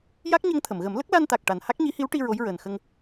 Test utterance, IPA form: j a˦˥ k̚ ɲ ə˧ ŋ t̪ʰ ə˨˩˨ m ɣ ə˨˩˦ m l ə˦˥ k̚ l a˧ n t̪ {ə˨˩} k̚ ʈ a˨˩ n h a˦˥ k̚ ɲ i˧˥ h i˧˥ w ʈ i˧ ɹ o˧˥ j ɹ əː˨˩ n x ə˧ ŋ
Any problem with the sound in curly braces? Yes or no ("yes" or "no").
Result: yes